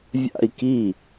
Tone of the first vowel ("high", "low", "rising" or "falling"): falling